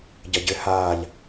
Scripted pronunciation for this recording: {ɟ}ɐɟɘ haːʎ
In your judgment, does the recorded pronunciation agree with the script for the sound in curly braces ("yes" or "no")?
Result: yes